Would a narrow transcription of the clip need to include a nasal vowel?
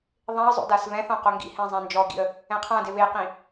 yes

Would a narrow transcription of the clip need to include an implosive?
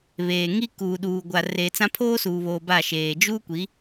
yes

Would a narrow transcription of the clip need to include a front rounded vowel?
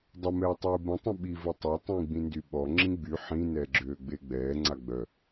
yes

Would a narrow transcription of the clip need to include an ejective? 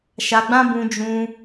no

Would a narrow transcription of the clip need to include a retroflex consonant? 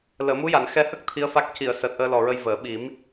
no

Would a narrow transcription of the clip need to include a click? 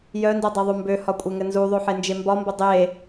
no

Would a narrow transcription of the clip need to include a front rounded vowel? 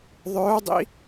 yes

